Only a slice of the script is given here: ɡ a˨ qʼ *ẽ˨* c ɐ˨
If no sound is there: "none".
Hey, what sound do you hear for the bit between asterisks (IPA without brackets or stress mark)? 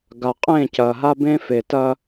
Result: ẽ˦˨